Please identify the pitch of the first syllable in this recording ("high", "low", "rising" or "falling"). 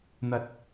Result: low